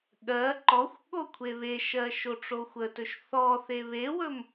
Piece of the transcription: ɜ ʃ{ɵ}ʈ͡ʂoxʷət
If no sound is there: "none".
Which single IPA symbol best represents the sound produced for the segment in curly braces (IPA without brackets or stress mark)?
o